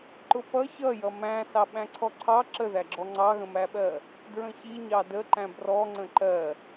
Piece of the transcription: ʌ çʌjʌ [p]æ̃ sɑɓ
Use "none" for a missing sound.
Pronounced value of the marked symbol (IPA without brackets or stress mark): m